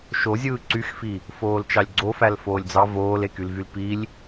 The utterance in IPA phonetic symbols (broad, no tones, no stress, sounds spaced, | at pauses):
ʃ o zʲ ɯː ǀ y x f i | f oː l t͡ʃ ɑ lʲ ɡ͡ǀ o f æ l f oː lʲ d͡z ɑ v oː l e k y l v y l p i lʲ